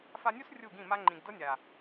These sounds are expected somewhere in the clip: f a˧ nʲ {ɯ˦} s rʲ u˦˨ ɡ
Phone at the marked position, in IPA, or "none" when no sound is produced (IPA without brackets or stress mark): u˦